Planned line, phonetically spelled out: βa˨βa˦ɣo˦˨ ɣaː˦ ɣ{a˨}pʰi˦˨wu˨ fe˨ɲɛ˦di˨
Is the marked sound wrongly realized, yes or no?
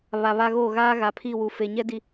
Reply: no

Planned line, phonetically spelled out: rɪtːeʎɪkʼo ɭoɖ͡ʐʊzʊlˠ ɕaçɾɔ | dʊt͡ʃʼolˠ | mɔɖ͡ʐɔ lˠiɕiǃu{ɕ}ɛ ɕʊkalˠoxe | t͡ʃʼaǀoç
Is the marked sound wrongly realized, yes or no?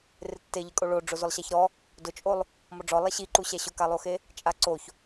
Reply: no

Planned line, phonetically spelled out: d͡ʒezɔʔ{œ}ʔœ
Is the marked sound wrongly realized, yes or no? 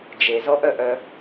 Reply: no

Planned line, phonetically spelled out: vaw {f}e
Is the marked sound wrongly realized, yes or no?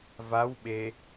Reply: yes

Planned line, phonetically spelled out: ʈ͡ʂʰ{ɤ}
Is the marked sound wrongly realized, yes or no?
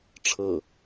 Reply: no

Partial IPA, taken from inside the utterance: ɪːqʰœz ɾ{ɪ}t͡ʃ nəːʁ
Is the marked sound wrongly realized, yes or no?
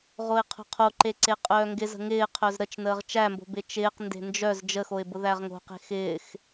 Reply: yes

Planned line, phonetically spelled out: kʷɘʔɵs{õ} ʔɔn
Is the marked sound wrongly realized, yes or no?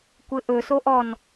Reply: yes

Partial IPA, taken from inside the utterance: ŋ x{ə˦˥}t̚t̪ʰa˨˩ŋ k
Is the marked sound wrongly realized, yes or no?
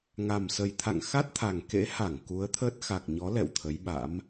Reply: yes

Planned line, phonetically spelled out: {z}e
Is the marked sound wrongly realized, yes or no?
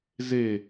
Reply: no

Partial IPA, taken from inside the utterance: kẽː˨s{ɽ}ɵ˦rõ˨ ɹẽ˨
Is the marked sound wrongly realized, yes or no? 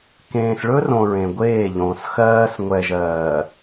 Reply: yes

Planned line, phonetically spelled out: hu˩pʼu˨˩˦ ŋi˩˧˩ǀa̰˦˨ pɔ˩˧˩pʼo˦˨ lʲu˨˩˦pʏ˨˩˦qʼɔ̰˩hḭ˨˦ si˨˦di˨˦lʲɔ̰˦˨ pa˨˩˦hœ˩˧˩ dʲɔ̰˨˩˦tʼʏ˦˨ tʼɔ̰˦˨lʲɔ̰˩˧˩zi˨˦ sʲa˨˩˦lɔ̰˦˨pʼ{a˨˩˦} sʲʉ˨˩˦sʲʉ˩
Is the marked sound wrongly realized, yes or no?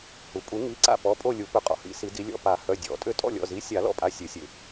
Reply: yes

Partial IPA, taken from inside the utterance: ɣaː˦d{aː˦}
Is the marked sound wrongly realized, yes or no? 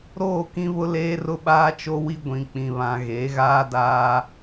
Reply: no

